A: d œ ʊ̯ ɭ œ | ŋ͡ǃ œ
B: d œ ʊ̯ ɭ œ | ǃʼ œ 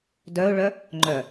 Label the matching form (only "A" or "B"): A